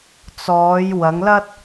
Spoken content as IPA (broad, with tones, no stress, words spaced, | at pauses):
t͡sɔː˨˧j wɐ˨˧ŋlɐ˥t̚